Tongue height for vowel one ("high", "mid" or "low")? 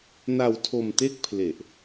low